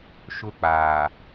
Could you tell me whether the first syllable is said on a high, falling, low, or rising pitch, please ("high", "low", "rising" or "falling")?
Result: high